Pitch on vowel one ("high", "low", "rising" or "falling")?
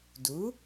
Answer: rising